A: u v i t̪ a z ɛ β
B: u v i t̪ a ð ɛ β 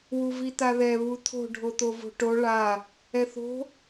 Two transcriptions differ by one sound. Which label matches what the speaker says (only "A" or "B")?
B